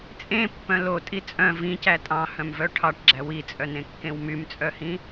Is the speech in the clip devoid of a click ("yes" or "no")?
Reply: no